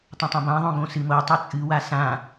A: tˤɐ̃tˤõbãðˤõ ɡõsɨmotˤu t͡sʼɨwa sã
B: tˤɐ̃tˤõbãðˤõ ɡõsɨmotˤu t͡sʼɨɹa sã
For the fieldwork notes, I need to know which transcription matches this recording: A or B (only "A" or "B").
A